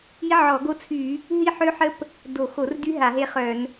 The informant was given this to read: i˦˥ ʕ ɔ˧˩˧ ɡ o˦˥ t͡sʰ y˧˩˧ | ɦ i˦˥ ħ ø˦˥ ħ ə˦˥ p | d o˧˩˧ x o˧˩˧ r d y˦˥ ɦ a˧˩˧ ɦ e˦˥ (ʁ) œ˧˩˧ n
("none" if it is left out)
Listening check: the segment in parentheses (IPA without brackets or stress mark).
χ